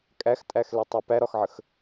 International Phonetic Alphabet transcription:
kʼ æ x tʼ æ x l ɛ tˤ ɛ p æ ɾ ɒ x ʕ ə x

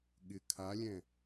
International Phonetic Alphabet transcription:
ɠ ɪ kʰ a lʲ ɛ̃

